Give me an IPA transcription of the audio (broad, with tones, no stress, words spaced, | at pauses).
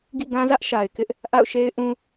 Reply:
ɡḭ˦˨ɡã˦zä˦ʔ ʃa˨ɪ̯ kɪ˦ʔ | ʔa̰˦˨ʊ̯ʃe˦ɪ̯ ʔũ˦